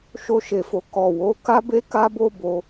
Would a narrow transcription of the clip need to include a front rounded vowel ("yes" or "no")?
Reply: no